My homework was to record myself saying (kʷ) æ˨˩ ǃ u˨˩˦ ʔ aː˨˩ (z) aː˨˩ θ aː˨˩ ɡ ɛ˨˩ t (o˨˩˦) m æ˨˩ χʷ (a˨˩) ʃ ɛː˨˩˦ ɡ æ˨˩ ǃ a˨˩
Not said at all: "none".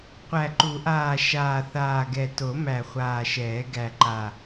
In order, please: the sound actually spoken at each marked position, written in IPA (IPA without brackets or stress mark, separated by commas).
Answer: qʷ, ʃ, o˨˩˦, aː˨˩